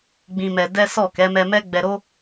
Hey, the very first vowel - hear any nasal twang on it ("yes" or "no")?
yes